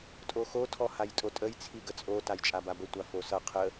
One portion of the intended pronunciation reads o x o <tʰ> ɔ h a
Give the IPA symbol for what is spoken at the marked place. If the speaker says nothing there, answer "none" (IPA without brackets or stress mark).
tʰ